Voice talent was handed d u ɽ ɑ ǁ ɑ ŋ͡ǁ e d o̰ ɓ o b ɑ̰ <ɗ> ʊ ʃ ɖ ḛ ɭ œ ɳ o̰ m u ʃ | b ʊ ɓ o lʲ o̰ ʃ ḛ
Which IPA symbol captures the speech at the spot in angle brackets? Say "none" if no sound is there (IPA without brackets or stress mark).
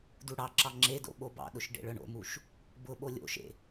ɗ